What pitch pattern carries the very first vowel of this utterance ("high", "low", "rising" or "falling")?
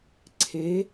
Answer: rising